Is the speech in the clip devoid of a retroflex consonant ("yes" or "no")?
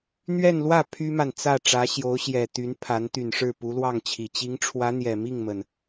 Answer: no